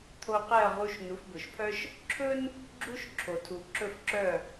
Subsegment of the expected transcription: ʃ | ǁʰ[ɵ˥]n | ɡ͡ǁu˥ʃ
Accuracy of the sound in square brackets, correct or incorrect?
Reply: correct